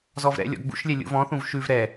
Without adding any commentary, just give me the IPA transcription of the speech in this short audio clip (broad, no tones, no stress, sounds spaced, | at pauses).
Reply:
z ɔ v ɾ ɛ̰ lʲ ɔ̰ ɡ͡b ṵ ʃ lʲ ɛ lʲ ṵ v ɔ̃ θ ũ v ʃ ʉ v ɾ ɛ